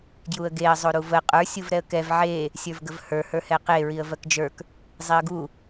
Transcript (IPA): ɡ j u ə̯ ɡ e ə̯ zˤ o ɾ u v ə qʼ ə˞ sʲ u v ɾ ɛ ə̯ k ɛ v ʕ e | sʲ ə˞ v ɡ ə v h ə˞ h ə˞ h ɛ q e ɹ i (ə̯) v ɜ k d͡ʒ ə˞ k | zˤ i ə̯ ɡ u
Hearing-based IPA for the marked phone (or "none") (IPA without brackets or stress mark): ə̯